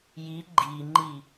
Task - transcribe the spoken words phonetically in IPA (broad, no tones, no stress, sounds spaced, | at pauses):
j i ɡ͡ǃ i ŋ͡ǃ i